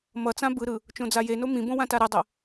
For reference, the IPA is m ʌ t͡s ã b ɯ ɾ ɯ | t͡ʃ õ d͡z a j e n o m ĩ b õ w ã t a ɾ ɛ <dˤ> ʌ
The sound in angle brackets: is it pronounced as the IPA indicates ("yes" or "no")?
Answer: yes